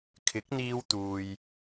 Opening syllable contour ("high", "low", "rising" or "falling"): rising